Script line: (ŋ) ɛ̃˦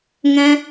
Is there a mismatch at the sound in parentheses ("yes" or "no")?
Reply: no